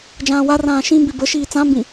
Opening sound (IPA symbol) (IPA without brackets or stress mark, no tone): d͡ʒ